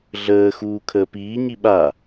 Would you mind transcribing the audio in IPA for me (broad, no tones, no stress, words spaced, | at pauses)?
ɮəːxuː kʰəːpiːɲi ɓa